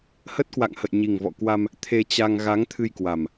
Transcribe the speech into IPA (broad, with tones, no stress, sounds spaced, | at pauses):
h ə˦˥ t̚ k w a̰˧˨ ŋ h ə̰˧˨ j ɲ i˨˩ ŋ v ɔ̰˧˨ k w a˧ m | t̪ʰ e˧ t͡ɕ a˧ ŋ ɣ a˨˦ ŋ t̪ʰ ɨ˧ j k w a˨˩ m